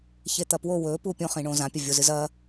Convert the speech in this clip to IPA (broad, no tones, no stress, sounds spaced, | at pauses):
ç e t̪ ɐ p w o w ɵ p u pʲ õ χ ĩ ɳ õ z ã pʲ ɐ vʲ o z ɨ z ɐ